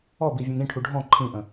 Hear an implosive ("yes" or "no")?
no